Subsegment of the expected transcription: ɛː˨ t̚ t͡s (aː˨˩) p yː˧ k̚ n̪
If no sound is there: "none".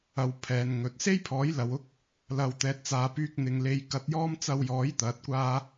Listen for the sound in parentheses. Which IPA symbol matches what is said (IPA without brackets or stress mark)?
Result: aː˨